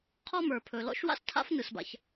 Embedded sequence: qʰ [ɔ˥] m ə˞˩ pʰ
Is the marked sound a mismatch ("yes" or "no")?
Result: no